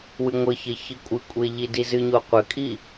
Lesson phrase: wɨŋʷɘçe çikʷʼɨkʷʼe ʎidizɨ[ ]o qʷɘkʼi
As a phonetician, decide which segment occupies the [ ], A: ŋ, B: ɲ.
B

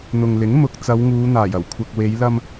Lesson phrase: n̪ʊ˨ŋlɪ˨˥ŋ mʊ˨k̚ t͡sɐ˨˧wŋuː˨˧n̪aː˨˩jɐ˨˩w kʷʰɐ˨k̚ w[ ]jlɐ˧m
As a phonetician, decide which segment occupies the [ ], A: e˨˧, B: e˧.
A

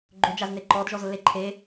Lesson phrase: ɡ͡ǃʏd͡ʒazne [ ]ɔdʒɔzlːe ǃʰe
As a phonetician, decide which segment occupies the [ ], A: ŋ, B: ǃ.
B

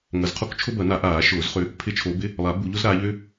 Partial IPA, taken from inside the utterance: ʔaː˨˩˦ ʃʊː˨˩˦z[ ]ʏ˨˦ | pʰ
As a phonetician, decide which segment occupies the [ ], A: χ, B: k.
A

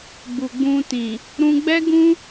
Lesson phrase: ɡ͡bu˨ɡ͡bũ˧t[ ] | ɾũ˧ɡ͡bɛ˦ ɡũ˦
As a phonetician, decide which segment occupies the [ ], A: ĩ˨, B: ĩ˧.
A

